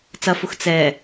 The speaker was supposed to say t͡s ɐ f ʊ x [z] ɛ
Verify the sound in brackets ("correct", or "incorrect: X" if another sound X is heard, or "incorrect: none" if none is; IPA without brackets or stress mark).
incorrect: t͡s